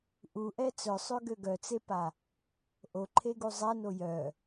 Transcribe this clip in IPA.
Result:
ʔuʔɛ t͡sœsˤøɡø ɡœt͡sepa | ʔoǃʰeɡu zˤɛno jœ

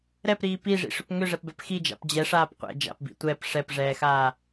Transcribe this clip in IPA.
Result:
ɾɛpɾiː piʐḭʂʏp ŋʏʐɛpbɛp xid͡ʒa̰p d͡ʑɛʂaːp qʷɛ̰ d͡ʒa̰pbḭ tʷɛp ʂɛpʐɛːxaː

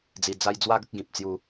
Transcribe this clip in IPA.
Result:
d͡zi˧d͡za˦j d͡zwa˦ɡə˦k̚ ɡĩ˨p̚t͡sju˧

